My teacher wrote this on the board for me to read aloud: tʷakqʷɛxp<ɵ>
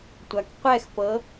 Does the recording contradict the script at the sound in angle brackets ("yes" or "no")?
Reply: yes